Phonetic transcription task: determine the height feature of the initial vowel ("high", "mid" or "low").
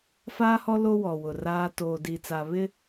low